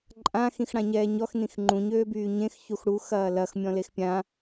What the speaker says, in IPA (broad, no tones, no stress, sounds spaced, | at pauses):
ǃʼ ã x ĩ x ɽ ã ɲ ɛː ɲ ɔ x n ĩ x ŋ͡ǃ ũ ɲ øː b yː ɲ ẽ x ç u x ɽ u x ɐː l ɐ x mʲ ɔ̃ l e x pʲ ã